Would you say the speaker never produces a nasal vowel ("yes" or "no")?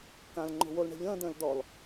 no